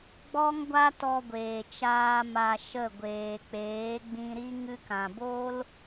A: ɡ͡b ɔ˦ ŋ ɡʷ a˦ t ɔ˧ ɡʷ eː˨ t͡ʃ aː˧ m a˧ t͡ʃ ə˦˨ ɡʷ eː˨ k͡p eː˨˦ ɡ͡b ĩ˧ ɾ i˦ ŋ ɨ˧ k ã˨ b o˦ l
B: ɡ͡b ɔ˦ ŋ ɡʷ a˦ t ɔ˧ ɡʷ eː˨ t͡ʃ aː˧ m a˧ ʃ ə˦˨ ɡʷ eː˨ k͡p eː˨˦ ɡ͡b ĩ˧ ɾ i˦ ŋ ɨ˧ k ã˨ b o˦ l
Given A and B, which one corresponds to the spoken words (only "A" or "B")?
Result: B